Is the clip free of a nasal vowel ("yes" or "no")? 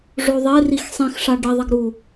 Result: no